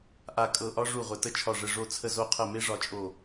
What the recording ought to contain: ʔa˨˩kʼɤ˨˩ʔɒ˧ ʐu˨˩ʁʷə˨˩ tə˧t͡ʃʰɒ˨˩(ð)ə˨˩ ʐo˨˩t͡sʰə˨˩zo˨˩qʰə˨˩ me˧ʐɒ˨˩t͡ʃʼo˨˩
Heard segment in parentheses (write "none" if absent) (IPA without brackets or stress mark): ʐ